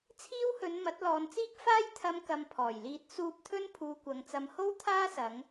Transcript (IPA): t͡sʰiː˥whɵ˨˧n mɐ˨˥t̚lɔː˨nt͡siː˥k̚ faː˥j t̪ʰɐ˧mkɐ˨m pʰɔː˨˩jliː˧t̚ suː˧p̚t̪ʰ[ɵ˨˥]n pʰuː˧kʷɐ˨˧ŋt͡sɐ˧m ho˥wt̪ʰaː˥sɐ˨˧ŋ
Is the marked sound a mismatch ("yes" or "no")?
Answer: yes